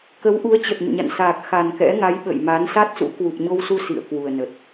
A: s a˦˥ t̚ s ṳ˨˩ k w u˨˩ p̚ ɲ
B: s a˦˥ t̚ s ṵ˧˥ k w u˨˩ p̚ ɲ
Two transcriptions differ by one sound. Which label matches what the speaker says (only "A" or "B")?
B